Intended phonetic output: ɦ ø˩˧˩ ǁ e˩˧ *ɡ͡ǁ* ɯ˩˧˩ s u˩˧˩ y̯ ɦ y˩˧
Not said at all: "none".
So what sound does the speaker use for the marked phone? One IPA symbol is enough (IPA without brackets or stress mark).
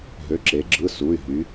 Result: ɡ͡ǁ